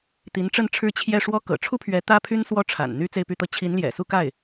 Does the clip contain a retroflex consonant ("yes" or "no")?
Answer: yes